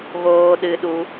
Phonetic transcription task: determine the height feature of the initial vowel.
mid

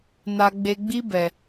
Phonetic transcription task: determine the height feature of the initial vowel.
low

